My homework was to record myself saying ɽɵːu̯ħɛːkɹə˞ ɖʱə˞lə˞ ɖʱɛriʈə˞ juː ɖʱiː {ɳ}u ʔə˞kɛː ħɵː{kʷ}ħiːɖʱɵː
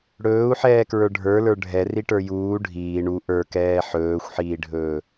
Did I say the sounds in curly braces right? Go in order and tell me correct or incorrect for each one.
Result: correct, incorrect: xʷ

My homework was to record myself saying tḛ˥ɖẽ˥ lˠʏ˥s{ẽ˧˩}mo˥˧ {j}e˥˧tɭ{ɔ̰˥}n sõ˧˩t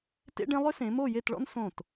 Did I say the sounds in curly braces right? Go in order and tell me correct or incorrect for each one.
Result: incorrect: ẽ˩˧, correct, correct

